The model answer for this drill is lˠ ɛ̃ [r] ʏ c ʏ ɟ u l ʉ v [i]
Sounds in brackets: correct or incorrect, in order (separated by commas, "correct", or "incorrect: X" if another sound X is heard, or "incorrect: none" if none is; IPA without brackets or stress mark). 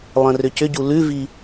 correct, correct